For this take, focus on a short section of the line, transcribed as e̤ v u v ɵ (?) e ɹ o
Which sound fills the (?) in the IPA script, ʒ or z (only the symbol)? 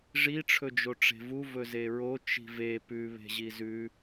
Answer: z